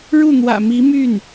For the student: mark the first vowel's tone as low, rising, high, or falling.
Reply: falling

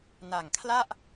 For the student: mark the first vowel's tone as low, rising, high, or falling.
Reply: low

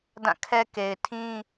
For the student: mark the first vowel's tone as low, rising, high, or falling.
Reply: falling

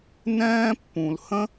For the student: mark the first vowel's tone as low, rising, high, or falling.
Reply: high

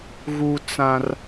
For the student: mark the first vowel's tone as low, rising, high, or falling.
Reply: high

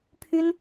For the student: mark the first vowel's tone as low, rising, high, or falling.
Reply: high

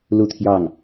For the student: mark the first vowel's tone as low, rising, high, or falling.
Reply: falling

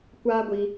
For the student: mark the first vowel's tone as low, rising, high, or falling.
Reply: high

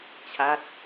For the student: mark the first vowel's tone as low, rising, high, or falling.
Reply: falling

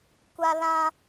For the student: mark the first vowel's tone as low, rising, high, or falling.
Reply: high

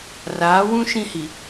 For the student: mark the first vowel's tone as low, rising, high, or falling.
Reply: rising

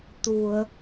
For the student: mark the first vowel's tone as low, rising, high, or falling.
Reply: low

